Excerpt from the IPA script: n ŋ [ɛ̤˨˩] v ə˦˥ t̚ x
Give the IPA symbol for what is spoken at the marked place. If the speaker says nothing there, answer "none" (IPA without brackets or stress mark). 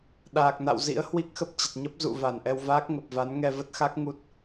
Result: ɛ˧